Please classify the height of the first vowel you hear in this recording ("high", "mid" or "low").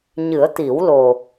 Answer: high